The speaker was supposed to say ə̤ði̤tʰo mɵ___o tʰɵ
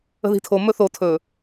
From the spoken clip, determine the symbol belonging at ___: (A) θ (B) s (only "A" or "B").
A